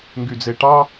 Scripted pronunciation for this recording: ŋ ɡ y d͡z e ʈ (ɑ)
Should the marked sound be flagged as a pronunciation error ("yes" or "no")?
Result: no